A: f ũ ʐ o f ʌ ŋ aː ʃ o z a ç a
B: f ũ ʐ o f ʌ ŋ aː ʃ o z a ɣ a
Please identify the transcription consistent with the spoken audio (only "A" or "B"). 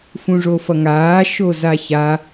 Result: A